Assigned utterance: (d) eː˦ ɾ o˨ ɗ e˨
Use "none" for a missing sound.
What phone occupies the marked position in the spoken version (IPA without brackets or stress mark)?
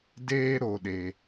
d